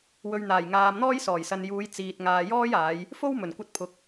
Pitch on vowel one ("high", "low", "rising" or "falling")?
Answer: low